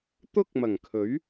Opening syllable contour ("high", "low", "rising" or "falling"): high